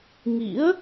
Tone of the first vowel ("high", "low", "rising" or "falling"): rising